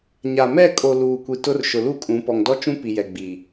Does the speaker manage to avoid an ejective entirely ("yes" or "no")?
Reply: no